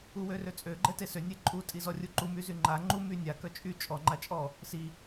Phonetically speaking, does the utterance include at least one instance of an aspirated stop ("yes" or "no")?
no